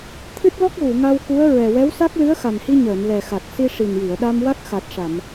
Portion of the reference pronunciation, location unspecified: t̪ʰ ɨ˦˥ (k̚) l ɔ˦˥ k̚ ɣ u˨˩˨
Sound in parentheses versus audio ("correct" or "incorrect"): incorrect